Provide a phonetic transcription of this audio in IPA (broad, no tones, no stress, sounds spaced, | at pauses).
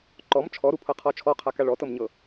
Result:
ǃ ɔ m t͡ʃʰ ɔ ɾ u pʰ ɤ qʰ ɔ t͡ʃʰ ɔ qʰ a k a ɭ ɔ t ɤ m ɲ ɤ